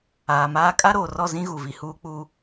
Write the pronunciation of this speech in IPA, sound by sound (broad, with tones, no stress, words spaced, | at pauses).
aː˨maː˦ kʼa˦ɾoː˨ rɔ˦˨zĩ˦ ɣu˨vi˨huː˦k͡puː˦